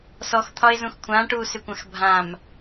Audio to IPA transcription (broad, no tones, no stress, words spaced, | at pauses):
sɔxt̪ʰɒɪ̯zũx kʷʰãːʈuːsʏkʷãx bʱãm